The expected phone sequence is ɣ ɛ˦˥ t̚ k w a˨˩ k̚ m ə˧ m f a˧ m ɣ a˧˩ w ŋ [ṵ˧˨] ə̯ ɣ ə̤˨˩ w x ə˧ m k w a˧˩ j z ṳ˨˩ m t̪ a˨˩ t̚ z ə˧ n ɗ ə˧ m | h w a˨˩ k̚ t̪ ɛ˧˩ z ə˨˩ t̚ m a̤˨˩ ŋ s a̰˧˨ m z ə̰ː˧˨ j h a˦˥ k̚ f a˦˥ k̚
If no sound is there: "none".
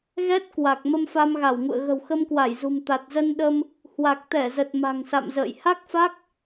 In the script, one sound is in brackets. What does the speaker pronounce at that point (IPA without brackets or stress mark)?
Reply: ṵ˧˨